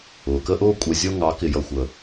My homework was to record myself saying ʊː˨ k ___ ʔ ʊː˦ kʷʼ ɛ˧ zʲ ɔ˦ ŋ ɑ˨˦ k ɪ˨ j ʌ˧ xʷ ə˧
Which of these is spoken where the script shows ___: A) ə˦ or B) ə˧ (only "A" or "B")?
A